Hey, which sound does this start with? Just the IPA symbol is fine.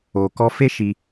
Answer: o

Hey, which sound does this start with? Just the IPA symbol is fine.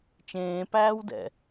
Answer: t͡ʃ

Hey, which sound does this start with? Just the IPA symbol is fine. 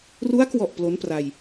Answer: r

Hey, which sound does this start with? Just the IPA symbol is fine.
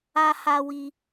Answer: a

